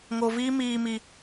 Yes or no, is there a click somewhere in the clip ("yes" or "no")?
no